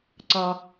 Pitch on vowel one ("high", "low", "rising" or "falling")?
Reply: low